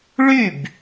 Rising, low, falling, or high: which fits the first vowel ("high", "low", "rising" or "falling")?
falling